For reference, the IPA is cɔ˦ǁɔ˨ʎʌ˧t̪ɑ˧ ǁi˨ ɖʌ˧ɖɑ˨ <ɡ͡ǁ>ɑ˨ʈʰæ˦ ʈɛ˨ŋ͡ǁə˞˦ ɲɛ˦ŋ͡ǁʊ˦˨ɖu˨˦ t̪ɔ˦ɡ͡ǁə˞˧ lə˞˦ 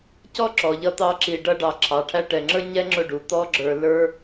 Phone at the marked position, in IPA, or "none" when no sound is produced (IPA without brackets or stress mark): ǁʰ